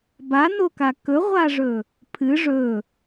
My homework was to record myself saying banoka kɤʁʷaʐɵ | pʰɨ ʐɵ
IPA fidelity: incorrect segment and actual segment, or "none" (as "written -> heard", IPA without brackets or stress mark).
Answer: ɤ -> ɵ